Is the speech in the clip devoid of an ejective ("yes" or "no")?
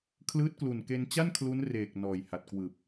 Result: yes